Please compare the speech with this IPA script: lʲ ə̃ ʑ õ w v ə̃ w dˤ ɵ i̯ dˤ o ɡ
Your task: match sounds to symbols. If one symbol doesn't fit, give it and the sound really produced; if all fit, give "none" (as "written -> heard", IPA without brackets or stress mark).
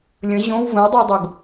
ɵ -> ʊ